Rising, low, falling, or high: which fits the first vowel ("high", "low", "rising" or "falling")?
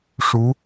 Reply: rising